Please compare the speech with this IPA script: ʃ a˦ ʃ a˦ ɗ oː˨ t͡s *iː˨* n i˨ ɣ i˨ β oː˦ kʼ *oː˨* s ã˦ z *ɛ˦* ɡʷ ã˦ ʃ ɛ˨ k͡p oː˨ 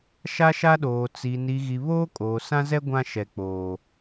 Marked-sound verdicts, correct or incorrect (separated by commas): incorrect, correct, correct